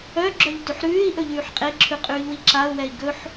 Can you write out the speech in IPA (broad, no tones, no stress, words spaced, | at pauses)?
œɡ͡ǁœʎ tʉħɾʉːi̯ʔɵ ʎʉːħqʼeǁʰʉ qʼʉːʎwiǁau̯wɛi̯ ɡɵħ